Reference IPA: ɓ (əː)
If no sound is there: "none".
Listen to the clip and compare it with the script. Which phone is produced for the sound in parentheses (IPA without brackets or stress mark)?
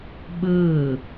əː